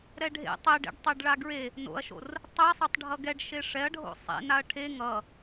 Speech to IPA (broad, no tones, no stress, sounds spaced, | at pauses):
ɾ ɛ ɖʱ ḛ tˤ e ɖ ḛ ɖ tˤ ɛ ɖ ɭ a ɡ ɹ e | n o̰ ɐ̯ ʃ o̰ r | tˤ ɛ sˤ o tˤ ɖʱ ʌ ɡ ɛ ɖ ʃ e ʂ ɛ ɐ̯ ɖʱ o̰ sˤ ḛ n a ɐ̯ ʈʰ e ŋ ʌ